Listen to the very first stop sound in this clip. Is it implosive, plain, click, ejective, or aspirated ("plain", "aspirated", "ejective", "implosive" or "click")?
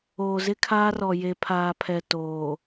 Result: aspirated